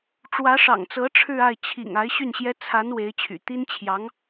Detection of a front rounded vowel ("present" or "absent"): present